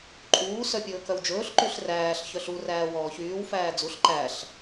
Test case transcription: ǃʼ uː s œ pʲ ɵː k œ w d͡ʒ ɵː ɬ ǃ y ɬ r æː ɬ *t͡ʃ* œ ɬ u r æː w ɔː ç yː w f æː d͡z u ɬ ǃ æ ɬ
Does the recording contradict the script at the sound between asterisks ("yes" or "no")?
yes